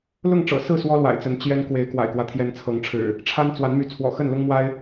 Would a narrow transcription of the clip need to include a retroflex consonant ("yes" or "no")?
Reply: yes